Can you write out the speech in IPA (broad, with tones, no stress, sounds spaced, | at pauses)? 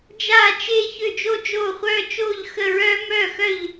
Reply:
d͡ʒ aː˥˧ t͡ʃ e˥˧ ç ø˥˧ d͡ʒ o˥ d͡ʒ oː˥˧ χʷ œː˥ t͡ʃ oː˥˧ ʎ x ə˥˧ ɹ œː˥ m œː˥˧ x œ˥˧ ʎ